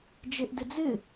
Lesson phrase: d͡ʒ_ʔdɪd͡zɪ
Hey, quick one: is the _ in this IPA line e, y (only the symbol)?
e